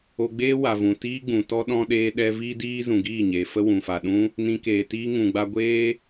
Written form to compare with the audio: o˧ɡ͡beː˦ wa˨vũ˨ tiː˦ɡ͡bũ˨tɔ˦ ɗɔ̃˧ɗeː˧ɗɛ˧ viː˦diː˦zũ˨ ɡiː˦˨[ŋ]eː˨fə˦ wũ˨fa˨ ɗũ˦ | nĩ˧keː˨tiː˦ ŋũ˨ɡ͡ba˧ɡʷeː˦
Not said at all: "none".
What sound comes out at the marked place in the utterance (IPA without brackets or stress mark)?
ɲ